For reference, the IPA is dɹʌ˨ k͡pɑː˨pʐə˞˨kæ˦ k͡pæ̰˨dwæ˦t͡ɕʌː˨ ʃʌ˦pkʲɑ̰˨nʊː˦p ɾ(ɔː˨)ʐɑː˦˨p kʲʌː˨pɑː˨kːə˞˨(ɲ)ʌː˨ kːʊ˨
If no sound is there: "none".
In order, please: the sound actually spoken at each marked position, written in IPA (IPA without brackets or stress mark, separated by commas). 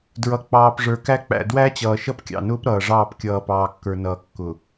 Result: ʌː˨, n